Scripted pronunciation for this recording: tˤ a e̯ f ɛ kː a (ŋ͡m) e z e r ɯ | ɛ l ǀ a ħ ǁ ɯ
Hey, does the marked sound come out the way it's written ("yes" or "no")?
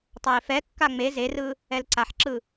yes